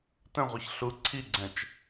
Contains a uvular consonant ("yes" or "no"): yes